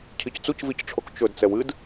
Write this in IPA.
cʰ i c t͡s u c v i c ʈ͡ʂʰ o k t͡ʃ ɵ d t͡s ɛ w ɨ d

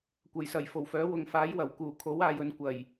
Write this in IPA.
kʷ ɐ˨˩ j s ɐ˨˩ j f o˨˩ w f œː˨˥ w ʊ˨ ŋ f aː˨˥ j w ɐ˨˩ w k uː˨˩ kʰ o˨˥ w aː˧ j ɵ˨˥ n kʷ ɐ˨˩ j

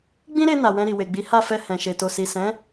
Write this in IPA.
ɡ͡b ĩ˦ ɾ e˧ n a˨ w ɛ̃˧ ɾ i˨ w e˨ ɡ͡b i˨˦ h a˦˨ f ɛ˧ h ɛ̃˨ ʃ e˨ t o˨ s i˨ s ɛ̃˨˦

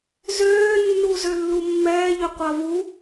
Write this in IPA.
z øː nː u z ø lː u mː ɛː ʎ ø qʷ a v u

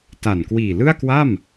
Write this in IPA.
t a˨˩ n k w iː˨˩ l ɯ˥˩ a̯ k w a˥˩ m

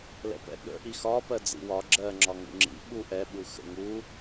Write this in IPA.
l ɛ̰ p ɛ̰ ɠ ə̰ ʔ i x ɒ p ɜ d͡z ḭ w ɒ ɡ͡ǁ ɜ ŋ͡ǁ ɒ ŋ ṵ ŋ͡ǁ ḭ ɓ u ʔ ɛ ɓ u x ə̰ ŋ u

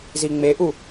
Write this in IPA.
z i ŋ͡m e ʔ u

